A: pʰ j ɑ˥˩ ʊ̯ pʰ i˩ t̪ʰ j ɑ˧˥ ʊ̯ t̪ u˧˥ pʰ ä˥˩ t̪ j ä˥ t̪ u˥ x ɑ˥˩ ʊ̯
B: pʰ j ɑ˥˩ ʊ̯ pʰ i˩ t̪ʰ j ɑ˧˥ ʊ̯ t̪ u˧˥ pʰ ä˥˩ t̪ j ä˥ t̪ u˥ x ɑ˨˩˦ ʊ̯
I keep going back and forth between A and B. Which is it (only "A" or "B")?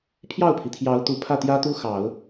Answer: B